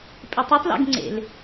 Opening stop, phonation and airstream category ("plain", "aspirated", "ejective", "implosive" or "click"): ejective